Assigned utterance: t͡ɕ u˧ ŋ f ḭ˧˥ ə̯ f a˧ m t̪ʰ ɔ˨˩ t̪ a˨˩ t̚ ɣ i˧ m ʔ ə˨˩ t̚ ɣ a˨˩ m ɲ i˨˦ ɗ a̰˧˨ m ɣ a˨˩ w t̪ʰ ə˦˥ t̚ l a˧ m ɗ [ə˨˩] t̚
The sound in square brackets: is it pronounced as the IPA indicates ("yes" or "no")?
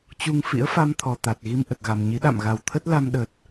yes